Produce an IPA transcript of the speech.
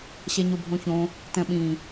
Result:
ɕ ɛ ɲ o bʱ õ ç õ | t ɛ̃ ɓ ĩ

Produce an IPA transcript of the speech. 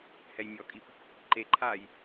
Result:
h ɛ j mʲ ɔ kʼ i p | ǃ e ǃʰ aː j

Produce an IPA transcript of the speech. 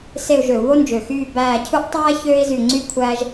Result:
s e˦˨ u̯ ʒ ø˧˩˧ u̯ β o˥ n d͡ʒ ø˨˩ x yː˦˨ b æː˦˨ cʰ u˥ ʔ tˤ æː˥ ç øː˥ i̯ z y˦˨ ŋ͡ǀ y˥ kʷʰ æː˥ ʒ

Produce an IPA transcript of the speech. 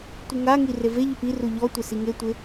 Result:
tʷ ɪ ŋ a ŋ i r e v e ʎ ʊ p i r u ʎ ɔ tʷ ɪ s i ŋ e tʷ ɪ

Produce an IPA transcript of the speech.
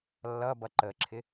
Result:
lː ʌ b ʌ ǃ ə ǁʰ ɪ

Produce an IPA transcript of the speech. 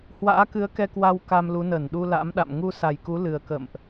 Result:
h w a̰ː˧˥ k ɨ˨˦ ə̯ k ɛ˧ k w a˧ w k a˧ m l u˨˦ n əː˧˩ n ɗ u˧ l a̰˧˥ m ɗ a̰˧˨ m ŋ u˧ s a˨˩ j k u˨˦ l ɨ˨˩ ə̯ k ə̰˧˨ m ʔ

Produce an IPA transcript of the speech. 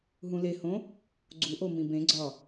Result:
ɦ ũ l e h õ | ɡ͡ǀ u ʔ o m ĩ b ẽ ɡ͡ǀ ɒ

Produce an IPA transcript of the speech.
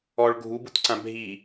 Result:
ɔ ɭ ɡʱ u b u t ǀ ã bʱ i

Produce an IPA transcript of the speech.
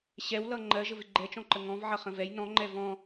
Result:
ɕ ɛ w l ʌ ŋ͡ǃ ɜ ʒ ə v ɪ ɡ͡ǃ ɛ t͡ʃ ɔ̃ ǃ ə ŋ ɔ̃ v ʕ ʌ χ ə̃ v ɛ j n ɔ̃ ŋ͡ǃ ɛ v ɔ̃

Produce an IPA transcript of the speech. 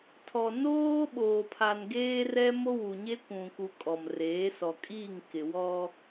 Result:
tʰ ɔ˨ n oː˦ ɓ oː˨ pʰ a˨ n ɡ eː˦ r ɛ˦ m o˦ w u˨ ɲ e˦ kʷ ũ˨ k u˨ kʼ ɔ˨ m r eː˨˦ s ɔ˨ kʼ iː˦˨ ŋ k ɪ˨ w ɔ˦

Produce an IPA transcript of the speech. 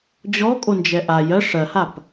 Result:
d͡ʑ ɔ kʼ o n d͡ʒ ɛ ʔ a j ɜ ʂ ɜ h a p

